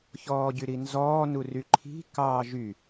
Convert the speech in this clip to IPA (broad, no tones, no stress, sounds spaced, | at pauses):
ç ɔː ɟ y ɾ i n z ɔː n u r y ǃʰ i̤ k ɑː ʒ y